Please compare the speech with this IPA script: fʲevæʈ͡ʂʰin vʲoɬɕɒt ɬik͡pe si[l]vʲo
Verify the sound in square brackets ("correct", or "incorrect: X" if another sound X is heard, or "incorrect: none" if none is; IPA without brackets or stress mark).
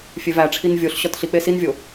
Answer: incorrect: n